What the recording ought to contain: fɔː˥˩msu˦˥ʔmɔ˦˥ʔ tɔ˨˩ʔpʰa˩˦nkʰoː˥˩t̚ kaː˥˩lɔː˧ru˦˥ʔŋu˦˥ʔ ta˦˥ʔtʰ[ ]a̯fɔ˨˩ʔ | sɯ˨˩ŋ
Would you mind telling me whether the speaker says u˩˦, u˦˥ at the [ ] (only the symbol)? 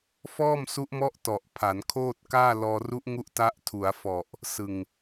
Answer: u˩˦